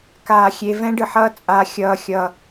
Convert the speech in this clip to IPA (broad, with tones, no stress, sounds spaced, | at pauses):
k aː˨ xʲ e˨ v ɛ̃˦ ɖ ɯ˨ ħ ʌː˦ t͡sʼ a˦ xʲ ʌː˦˨ xʲ ʌː˦